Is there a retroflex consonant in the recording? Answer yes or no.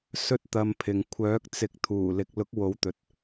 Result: no